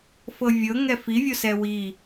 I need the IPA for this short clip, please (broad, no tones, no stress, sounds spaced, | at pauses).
f ɤ vʲ ɤ ŋ ɛ f i vʲ o s ɛ w i